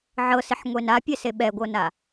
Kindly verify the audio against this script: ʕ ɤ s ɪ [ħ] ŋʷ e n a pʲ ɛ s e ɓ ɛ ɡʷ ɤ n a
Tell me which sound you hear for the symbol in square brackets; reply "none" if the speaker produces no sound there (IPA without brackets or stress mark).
ħ